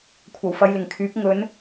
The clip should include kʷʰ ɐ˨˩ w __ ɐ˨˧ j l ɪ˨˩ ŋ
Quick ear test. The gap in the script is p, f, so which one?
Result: f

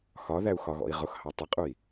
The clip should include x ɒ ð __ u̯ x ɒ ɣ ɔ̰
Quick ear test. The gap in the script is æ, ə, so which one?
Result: æ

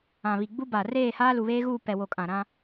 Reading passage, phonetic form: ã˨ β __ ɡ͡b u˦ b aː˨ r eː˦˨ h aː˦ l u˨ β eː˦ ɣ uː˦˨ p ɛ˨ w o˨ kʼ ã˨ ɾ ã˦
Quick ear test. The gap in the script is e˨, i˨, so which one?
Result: i˨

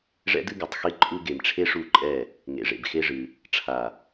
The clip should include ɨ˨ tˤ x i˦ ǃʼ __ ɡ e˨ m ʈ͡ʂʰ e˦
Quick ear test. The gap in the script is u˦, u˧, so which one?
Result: u˦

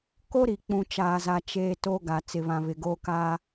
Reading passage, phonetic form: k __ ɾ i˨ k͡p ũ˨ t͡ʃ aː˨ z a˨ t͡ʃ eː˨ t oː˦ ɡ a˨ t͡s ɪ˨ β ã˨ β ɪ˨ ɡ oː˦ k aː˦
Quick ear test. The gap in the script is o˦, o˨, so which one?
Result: o˦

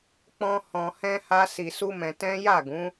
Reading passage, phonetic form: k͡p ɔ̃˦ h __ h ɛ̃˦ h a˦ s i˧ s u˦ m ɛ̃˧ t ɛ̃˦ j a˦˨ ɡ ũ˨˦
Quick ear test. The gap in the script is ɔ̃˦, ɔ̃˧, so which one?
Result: ɔ̃˧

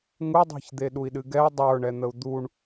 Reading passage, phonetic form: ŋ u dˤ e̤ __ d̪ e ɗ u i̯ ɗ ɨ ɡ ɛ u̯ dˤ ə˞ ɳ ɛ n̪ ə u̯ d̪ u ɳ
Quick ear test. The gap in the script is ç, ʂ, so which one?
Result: ç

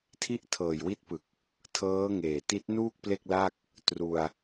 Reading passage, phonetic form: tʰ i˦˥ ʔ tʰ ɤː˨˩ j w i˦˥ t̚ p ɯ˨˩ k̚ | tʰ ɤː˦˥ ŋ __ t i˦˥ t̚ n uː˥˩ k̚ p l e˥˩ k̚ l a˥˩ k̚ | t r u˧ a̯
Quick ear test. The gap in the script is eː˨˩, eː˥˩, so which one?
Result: eː˨˩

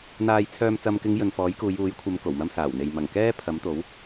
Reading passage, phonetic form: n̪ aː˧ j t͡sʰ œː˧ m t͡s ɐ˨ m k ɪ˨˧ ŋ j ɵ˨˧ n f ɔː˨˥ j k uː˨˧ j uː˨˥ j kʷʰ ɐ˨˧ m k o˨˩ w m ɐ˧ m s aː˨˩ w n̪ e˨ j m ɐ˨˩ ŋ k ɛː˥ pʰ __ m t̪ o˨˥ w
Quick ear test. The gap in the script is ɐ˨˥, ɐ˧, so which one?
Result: ɐ˨˥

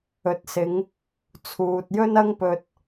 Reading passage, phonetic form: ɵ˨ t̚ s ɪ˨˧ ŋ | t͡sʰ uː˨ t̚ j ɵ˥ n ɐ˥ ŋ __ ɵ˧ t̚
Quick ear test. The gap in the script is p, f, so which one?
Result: p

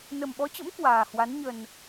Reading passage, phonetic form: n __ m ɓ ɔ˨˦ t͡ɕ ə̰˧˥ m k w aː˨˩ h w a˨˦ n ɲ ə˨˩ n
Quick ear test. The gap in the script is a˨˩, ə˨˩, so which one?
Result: ə˨˩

